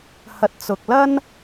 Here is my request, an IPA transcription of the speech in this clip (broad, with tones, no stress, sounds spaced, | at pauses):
h ɐ˨ t̚ t͡s ʊ˨ k̚ l ɐ˥ n